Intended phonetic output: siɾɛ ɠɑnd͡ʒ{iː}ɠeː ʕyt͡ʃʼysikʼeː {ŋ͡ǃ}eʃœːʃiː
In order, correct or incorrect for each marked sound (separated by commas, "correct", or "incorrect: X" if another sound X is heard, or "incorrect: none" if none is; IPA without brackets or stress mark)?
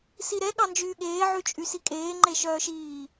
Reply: incorrect: yː, correct